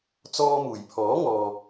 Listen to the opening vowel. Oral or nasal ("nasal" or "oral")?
oral